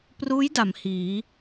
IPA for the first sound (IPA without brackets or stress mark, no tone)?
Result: p